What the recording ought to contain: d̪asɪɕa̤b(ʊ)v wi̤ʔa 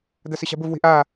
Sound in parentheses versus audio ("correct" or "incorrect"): correct